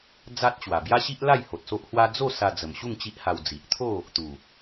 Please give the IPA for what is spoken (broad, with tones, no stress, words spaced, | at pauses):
d͡za˦t̚t͡ɕwa˨˩ bja˦ɕi˦ʔla˥˧j ho˨t̚so˦ʔhwa˦ d͡zo˥˧ sa˧d͡zə˨˩mɕu˥˧ŋ t͡ɕi˦ʔha˧w d͡zi˨ʔ t̪ʰo˥˧ | t̪u˨˩